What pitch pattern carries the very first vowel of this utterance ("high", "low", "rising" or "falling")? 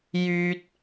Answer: high